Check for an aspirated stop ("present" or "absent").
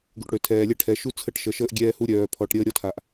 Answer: present